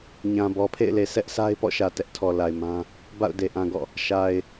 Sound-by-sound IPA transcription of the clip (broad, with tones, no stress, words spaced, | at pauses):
ɲã˨bɔ˨pʰḛ˦˨ɪ̯le˨ sɛ˦ʔ sʰa˦ɪ̯ pɔ̰˦˨ʃä˨ tɛ˦ʔtʰɔ˨la˨ɪ̯mã˦ | ba̰˦˨ʊ̯ de˨ʔã˨ɡɔ̰˦˨ | ʃa˨ɪ̯